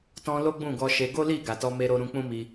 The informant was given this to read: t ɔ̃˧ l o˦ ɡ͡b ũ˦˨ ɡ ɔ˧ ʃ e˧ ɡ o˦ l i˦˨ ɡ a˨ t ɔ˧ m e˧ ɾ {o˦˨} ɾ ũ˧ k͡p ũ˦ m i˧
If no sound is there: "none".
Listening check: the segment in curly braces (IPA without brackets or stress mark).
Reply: o˧